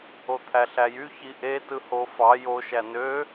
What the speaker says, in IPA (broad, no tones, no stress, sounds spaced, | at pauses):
o t̪ʰ æ ɬ æ j y ç i ʔ e t ɯ h o f ɑ j o ʃ æ n ø